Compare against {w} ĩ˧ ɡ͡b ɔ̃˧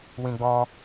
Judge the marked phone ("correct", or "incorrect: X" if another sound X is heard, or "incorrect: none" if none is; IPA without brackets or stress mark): correct